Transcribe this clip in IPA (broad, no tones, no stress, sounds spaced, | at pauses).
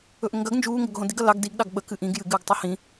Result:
ɵ ʔ ə ŋ ɡ ɐ ɡ n d͡ʒ uː ŋ ɡ ɵ ɡ ɦ õ d i ɡ ɐ l ɑ ɡ d i ɡ ɗ ɑ ɡ ɓ ə k ɨ ʔ ĩ ɡ j ɨ ɡ ɨː ɡ tˤ u h ĩ